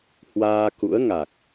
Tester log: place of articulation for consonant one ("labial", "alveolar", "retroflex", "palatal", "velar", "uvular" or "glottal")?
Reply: glottal